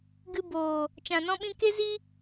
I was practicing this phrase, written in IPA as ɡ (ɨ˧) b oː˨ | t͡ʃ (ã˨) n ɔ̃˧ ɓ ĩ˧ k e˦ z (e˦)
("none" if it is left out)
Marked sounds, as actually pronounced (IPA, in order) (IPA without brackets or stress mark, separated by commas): ɨ˧, ã˨, i˦